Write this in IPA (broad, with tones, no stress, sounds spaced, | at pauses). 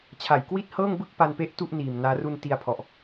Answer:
t͡ɕʰ a˨˩ j k w i˥˩ t̚ h ɤː˥˩ ŋ b ɯ˥˩ k̚ p a˧ n p e˦˥ ʔ t u˥˩ ʔ n iː˨˩ m n aː˦˥ r u˧ n t i˧ a̯ pʰ ɔ˨˩ ʔ